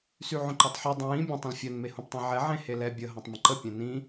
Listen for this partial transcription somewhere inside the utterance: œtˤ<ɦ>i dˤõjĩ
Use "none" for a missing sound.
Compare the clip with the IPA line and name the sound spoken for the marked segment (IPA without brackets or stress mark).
ħ